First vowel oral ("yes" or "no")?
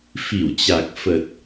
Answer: yes